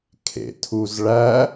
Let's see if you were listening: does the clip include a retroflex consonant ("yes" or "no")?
yes